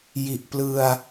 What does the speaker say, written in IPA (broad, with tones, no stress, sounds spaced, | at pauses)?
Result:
j i˨˩ ʔ p l ɯ˧ a̯